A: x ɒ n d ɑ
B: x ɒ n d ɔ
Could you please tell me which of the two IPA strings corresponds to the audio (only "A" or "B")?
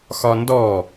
B